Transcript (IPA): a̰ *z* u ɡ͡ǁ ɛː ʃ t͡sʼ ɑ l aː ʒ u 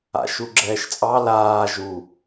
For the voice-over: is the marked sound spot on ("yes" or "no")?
no